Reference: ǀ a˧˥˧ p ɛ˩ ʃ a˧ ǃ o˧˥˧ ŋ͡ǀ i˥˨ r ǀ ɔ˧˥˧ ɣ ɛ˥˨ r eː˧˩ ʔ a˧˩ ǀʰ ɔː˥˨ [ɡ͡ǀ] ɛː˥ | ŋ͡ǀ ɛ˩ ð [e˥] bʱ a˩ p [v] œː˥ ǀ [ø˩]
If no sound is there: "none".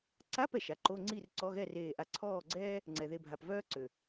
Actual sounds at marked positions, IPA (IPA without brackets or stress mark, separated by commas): ɡ͡ǀ, e˧˩, v, ø˩